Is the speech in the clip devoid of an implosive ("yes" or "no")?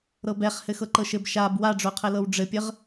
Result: yes